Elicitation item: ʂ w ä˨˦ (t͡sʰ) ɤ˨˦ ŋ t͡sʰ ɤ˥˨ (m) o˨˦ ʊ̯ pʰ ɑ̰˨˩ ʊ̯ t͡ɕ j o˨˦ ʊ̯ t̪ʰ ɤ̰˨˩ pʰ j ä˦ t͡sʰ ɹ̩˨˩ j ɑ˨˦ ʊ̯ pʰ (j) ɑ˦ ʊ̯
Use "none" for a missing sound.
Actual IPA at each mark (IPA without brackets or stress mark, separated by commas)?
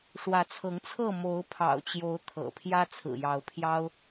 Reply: t͡sʰ, m, j